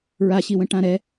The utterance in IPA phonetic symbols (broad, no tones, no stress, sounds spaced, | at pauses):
ɹ a ɕ i w ə̃ ʈ ã ɾ ɛ